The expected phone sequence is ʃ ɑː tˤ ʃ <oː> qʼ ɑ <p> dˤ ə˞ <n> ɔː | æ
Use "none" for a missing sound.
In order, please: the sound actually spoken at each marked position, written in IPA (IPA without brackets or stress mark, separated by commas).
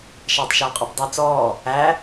ɔː, p, t͡s